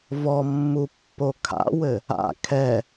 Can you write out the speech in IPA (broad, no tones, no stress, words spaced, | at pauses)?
vɔmːu pːokʰa̰wɘ | a̰ kʰɛ